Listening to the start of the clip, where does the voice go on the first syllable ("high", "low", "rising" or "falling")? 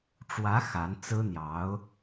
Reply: rising